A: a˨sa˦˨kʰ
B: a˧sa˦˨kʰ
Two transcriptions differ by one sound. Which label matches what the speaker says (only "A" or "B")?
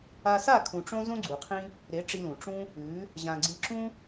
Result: B